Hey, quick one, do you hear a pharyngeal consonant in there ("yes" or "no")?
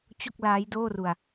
no